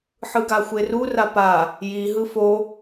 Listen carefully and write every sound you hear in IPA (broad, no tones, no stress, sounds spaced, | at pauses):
ħ ɯ ɡ a xʷ e r u r a p a | j i ɦ ɯ f o